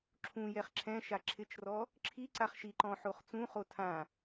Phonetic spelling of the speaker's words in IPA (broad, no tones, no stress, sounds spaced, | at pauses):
ǁʰ ũ j ɛ χ ǁʰ ɛ̃ ʃ a ǁʰ ɪ t͡ʃ r ɔ | ǁʰ i ǀ a χ ʃ i ǃ ɔ̃ ħ o χ t͡s ũ χ o tʰ ã